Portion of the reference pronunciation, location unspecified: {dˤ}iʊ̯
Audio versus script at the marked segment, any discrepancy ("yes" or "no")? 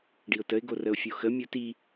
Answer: yes